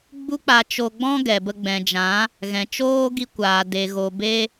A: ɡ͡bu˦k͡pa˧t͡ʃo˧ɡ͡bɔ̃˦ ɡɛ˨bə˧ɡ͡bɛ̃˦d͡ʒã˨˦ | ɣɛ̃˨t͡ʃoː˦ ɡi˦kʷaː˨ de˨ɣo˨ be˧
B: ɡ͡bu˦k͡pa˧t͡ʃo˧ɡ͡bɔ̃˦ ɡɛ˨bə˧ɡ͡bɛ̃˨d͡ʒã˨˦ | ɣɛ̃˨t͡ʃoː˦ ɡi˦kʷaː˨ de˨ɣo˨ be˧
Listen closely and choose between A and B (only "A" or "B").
B